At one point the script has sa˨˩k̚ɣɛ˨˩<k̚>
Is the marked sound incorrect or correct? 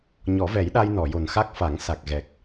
correct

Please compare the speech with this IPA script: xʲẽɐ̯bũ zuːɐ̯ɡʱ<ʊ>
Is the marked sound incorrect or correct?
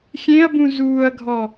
incorrect: ɔ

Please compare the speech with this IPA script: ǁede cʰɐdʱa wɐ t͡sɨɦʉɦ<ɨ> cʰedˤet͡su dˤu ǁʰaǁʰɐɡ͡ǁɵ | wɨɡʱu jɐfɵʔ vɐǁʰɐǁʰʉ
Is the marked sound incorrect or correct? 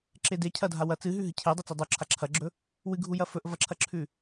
correct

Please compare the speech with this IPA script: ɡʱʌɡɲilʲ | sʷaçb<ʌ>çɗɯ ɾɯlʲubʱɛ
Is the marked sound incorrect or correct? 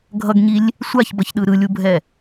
correct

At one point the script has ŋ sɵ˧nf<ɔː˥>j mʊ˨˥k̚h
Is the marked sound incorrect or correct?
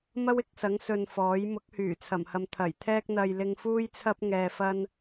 incorrect: ɔː˨˥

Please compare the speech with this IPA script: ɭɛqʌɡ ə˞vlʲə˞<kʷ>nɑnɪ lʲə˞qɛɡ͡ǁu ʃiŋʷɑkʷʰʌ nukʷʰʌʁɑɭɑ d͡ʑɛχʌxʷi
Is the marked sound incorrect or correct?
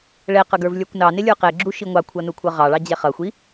correct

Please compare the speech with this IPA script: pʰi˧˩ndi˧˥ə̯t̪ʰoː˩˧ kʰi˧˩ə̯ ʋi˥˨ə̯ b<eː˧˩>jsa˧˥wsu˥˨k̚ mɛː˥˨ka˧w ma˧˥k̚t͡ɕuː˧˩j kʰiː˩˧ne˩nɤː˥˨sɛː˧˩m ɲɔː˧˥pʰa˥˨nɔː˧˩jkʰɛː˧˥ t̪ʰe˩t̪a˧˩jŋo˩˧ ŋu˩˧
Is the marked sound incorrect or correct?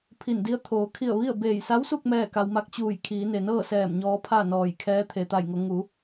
correct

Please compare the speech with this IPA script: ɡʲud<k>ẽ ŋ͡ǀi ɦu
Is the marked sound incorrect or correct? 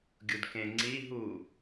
correct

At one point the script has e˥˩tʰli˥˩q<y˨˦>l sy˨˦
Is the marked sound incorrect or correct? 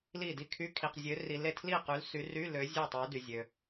correct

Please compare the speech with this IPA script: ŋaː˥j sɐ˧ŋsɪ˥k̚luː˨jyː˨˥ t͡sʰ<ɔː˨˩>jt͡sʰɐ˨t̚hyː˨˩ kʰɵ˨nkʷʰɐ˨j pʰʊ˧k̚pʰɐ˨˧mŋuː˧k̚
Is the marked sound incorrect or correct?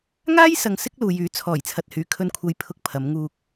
correct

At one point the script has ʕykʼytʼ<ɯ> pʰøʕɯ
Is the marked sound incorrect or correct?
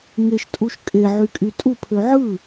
incorrect: u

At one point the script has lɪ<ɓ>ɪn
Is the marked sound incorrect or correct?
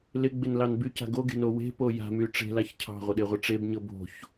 incorrect: ɡ͡b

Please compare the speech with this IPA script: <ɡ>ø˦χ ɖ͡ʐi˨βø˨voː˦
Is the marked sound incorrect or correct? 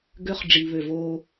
correct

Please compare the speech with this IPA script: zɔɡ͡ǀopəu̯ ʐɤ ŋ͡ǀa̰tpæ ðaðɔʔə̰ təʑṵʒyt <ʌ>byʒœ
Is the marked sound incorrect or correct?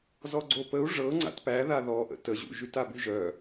incorrect: a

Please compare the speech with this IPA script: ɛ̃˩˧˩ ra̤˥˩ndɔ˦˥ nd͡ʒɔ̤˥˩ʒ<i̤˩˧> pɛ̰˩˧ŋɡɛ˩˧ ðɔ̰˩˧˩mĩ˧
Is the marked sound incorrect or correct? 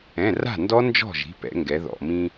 incorrect: i̤˩˧˩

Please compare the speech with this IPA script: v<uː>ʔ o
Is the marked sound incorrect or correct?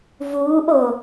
correct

